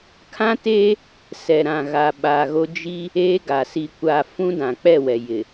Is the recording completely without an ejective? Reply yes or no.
yes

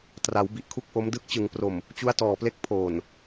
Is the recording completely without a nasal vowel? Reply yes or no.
yes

